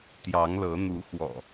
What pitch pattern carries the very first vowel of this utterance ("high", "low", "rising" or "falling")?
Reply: rising